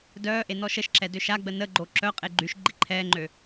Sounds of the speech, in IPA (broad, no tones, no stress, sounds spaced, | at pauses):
d œː ʔ e n ɔ ʃ ə ʃ ǁ ɛ d ø ʃ a ɡ͡b ə n ə ɡ͡ǃ o ǁ œ qʼ e ɡ͡ǃ y ʃ ɡ͡ǃ i ǃʰ ɛː ŋ͡ǃ ø